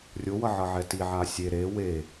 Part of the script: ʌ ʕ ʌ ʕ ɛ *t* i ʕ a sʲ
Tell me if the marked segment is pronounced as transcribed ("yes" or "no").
yes